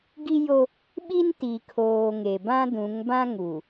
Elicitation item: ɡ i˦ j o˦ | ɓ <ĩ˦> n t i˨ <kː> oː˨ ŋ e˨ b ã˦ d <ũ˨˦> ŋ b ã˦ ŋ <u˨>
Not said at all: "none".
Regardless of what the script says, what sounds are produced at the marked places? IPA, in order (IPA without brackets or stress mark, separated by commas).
i˦, kʰ, ũ˨˦, u˨